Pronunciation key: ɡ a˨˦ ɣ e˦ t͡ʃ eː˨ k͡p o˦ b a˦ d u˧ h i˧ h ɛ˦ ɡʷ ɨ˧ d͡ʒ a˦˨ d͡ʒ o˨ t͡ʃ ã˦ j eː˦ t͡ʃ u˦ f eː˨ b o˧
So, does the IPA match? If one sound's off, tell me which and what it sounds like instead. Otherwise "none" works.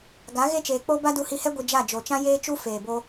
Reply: none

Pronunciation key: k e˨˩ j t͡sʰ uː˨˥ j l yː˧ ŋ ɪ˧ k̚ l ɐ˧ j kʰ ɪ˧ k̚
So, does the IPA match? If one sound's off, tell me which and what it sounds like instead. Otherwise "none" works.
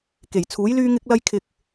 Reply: none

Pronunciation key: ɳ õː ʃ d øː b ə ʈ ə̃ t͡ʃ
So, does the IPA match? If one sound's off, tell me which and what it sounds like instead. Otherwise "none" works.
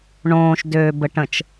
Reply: none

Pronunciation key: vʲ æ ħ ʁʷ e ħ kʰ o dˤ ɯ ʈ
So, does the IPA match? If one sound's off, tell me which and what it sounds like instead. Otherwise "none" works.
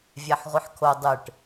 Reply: none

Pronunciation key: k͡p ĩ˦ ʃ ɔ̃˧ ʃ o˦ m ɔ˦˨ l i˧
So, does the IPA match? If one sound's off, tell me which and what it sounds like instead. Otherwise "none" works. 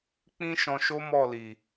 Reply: i˧ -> i˨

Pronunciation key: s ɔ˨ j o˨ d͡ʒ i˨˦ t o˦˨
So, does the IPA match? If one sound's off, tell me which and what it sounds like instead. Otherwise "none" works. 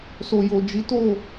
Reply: ɔ˨ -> o˨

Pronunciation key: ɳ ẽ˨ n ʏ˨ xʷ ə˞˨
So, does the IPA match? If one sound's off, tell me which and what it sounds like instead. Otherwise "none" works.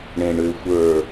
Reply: n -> ɳ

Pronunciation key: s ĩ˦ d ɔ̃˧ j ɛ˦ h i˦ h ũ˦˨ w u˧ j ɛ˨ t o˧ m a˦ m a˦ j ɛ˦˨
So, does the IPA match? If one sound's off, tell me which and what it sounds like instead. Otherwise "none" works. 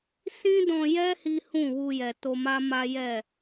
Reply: none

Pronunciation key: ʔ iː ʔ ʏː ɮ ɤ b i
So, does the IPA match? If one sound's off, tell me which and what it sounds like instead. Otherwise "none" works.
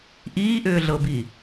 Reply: none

